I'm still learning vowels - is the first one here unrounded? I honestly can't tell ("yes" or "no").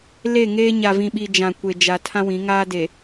yes